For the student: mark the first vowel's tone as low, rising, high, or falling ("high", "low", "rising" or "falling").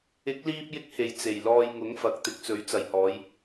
rising